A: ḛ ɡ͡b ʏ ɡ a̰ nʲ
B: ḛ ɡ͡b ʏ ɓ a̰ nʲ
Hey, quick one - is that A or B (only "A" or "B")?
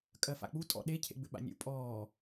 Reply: B